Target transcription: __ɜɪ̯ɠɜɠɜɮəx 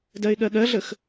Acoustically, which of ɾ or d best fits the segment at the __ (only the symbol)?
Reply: d